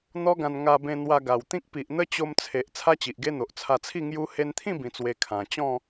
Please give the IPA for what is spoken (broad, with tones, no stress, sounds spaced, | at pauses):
n̪ ɔ˦ ɡ ã˧ n ŋ a˧ b ẽ˧ n̪ w a˧ ɡ a˨˩ w t̪ ĩ˦ k̚ p i˨ ʔ n̪ ə˦ t͡ɕ o˧ m t͡sʰ e˨ ʔ t͡sʰ a˦ t͡ɕ i˨ ʔ ɡ e˦ n̪ o˨ ʔ t͡sʰ a˧ t͡sʰ i˥˧ ŋ j u˧ h e˧ n t̪ʰ ĩ˥˧ b ĩ˨˩ t͡s w e˨˩ kʰ ã˨˩ t͡ɕ ɔ̃˥˧